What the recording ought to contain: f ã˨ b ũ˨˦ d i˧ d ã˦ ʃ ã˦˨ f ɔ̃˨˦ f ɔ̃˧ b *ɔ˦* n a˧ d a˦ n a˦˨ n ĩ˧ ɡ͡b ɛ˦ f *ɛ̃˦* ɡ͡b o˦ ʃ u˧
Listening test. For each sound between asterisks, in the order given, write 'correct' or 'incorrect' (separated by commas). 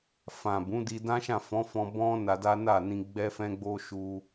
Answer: incorrect, correct